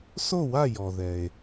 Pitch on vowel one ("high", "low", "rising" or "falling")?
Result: falling